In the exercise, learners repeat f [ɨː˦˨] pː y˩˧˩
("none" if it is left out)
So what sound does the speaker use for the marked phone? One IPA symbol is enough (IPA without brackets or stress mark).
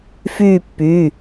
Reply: yː˦˨